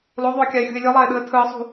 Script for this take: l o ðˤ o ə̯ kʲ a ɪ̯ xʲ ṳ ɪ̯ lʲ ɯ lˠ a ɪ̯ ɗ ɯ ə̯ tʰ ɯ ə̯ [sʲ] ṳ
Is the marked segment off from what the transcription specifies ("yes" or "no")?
yes